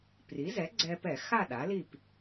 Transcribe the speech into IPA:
pri˩˥zɛ˩˥ɡ͡ǀɛ˧pɛ˧˩˧ xa˥˨ ɗa˩˥li˥˨p

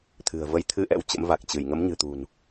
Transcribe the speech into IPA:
t̪ʰɨ̤˨˩ə̯ və˨˦jt̪ʰɨ˧ʔɛ̰˧˥w t͡ɕə̰˧˥mva˨˩k̚t͡ɕɨ˧˩j ŋə˨˦mɲɨ̤˨˩t̪ṳ˨˩n

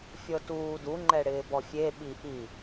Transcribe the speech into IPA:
fʲɤtuːduŋ͡ǃɛ ɽɪːbɔfʲe ɓiʔi

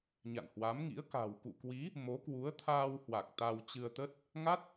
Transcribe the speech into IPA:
ɲa̰˧˨nhwa˨˦mŋḭ˧˥ə̯ ka̤˨˩wkṵ˧˨kwi˨˦ | mo˨˦kwu˨˦ə̯ t̪ʰaː˧whwa˨˩k̚ t̪a˧w t͡ɕɨ˧ə̯t̪ə˦˥t̚ | ŋa˦˥t̚

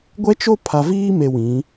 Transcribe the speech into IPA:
ɡʷɛ˦t͡ʃo˦ pʰa˨viː˦me˨ wĩ˨˦

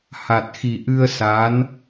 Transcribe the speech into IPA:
ha˨˩t̚xi˨˩ʔɨ˧ə̯ sa˧˥n

